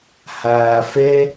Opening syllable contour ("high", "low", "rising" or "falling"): low